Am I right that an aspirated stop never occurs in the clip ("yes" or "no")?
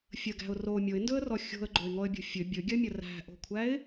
no